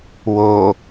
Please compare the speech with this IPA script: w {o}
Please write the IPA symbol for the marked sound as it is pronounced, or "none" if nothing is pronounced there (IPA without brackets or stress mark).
o